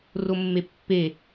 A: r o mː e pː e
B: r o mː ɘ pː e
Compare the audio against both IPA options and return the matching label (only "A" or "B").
A